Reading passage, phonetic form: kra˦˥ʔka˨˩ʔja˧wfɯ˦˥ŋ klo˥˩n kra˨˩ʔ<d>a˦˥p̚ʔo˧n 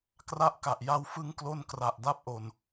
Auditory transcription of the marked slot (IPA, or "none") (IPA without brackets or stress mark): d